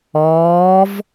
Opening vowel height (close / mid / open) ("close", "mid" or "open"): mid